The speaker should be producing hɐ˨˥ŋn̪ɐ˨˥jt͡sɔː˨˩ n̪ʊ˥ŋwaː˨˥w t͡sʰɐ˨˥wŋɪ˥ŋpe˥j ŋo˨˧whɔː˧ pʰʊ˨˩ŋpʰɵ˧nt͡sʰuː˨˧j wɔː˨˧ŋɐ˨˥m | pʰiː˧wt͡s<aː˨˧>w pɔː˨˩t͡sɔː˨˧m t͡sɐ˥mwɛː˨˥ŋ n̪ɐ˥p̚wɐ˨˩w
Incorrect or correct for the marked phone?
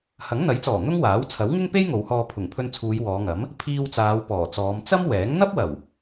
correct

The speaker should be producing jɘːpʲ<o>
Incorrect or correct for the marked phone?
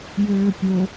correct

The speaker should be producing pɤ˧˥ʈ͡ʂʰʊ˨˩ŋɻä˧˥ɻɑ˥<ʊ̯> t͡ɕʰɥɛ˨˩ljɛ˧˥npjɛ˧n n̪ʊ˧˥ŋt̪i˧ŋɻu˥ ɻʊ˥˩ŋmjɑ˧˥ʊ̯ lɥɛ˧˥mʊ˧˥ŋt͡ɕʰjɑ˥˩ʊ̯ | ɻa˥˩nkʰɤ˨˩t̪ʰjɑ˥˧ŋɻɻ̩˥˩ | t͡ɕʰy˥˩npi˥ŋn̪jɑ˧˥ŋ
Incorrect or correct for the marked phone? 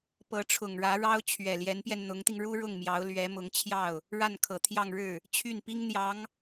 correct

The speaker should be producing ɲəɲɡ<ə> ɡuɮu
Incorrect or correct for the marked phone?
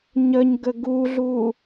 correct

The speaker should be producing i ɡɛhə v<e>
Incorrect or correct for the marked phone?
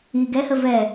incorrect: ɛ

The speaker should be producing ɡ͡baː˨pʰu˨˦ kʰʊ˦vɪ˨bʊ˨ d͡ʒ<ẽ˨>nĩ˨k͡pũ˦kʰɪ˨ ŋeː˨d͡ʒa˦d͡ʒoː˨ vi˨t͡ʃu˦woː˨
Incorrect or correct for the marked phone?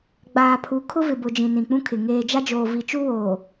incorrect: ĩ˨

